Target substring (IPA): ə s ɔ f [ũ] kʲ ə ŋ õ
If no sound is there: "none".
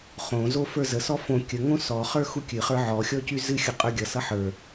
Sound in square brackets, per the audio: õ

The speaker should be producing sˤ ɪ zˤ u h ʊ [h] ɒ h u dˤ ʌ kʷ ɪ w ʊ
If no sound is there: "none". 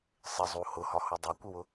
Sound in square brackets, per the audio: h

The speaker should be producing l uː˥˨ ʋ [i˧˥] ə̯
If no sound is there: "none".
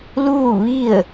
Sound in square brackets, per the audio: i˥˨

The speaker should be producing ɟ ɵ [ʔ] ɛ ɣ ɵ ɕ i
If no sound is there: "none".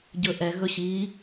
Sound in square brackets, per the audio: ʔ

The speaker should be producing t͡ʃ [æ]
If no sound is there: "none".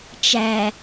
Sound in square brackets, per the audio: æ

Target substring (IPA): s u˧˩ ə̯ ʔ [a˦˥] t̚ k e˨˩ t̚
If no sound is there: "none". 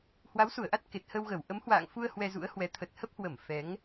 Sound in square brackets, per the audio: a˦˥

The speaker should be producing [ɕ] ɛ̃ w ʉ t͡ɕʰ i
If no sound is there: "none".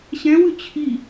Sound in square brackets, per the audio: ɕ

